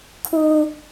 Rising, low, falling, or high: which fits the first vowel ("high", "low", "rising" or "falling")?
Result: high